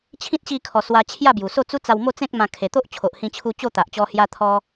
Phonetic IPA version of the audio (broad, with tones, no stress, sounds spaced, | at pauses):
t͡ɕʰ ĩ˦ t̚ ɕ i˧ kʰ ɔ˨˩ s w a˧ t͡ɕʰ j a˥˧ b j u˨˩ s o˥˧ t͡s u˦ t͡s a˧ w m o˥˧ t͡s ẽ˦ k̚ m ã˧ kʰ e˨˩ t̪ o˦ ʔ t͡ɕʰ o˨ ʔ h ĩ˧ t͡ɕʰ u˧ t͡ɕ o˥˧ t̪ a˨ ʔ t͡ɕ ɔ˧ h j a˧ t̪ʰ ɔ˧